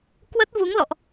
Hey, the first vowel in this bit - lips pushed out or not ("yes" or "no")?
no